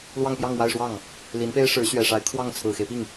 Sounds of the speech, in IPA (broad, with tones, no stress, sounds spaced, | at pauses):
l w ɑ˥˧ ŋ p j ɑ˥˧ ŋ w a˥˧ ɪ̯ ʂ w ɑ˥˩ ŋ | l i˧˥ n p e˥ ɪ̯ ʂ ɻ̩˧˥ ɕ ɥ ɛ˨˩ ʂ a˧˥ ɪ̯ kʰ w ɑ˥˩ ŋ t͡sʰ ɹ̩˨˩ x e˦ ɪ̯ p i˥˩ ŋ